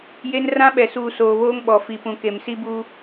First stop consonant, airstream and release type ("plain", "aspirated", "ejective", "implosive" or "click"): implosive